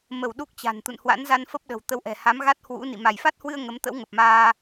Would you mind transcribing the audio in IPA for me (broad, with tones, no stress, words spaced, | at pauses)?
mə˧˩w ɗu˦˥k̚ t͡ɕa̤˨˩n t̪ṵ˧˨nhwa̰˧˥nza˧n fə˦˥p̚ɗə̤˨˩w t̪ə˨˦wʔɛ̤˨˩ ha˨˦mɣa˦˥t̚hwṵ˧˥nḭ˧˨ ma˧˩jfa˦˥t̚hwɨ˧ə̯ ŋə˨˦mt̪ə̰˧˥wŋə˨˩p̚maː˧